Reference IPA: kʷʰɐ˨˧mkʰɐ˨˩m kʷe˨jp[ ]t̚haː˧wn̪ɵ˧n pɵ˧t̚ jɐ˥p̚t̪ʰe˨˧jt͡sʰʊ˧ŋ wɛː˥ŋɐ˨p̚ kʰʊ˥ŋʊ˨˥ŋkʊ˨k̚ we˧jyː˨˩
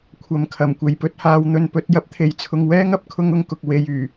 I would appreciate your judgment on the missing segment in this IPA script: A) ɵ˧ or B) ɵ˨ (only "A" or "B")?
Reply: A